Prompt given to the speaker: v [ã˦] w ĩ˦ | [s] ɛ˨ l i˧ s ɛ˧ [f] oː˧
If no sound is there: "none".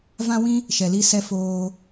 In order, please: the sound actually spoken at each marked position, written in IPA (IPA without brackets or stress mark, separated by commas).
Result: ã˦, ʃ, f